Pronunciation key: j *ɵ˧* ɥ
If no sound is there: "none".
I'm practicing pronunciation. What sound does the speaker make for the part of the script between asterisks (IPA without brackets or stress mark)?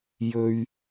ɵ˧